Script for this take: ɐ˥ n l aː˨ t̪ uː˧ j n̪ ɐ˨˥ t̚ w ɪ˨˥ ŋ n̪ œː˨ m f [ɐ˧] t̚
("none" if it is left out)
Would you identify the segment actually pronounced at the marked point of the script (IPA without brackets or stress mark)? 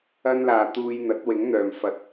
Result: ɐ˧